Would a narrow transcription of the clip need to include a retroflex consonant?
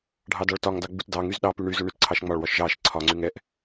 yes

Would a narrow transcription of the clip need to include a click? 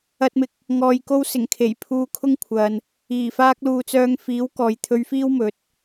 no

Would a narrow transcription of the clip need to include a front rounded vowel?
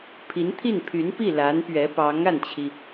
yes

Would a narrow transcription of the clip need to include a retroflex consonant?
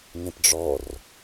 yes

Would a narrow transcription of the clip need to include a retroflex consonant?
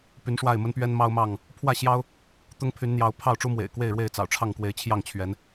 yes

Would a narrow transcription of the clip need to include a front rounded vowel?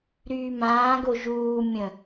yes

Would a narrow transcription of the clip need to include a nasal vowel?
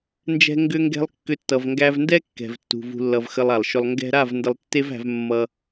no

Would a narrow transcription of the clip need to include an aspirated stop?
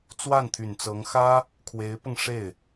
yes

